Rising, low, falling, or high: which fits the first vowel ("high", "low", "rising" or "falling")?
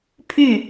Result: falling